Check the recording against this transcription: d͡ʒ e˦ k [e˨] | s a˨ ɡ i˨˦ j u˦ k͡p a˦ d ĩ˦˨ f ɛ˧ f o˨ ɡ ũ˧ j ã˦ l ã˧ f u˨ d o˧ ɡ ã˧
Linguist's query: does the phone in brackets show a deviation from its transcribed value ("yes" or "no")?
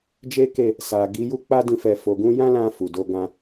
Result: yes